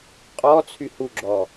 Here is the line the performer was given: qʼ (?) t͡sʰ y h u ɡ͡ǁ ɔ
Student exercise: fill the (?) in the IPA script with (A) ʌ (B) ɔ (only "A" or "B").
B